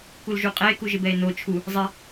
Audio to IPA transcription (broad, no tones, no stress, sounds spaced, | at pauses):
k u l ʒ u qʼ ɛ e̯ k u ʒ ɪ b ɛ e̯ n o t͡ʃʰ u | zˤ ɛ